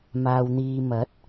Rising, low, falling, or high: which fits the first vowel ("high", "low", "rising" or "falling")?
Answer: low